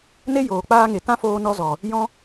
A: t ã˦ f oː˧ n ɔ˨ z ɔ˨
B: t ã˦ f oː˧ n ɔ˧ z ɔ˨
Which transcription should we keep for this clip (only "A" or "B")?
B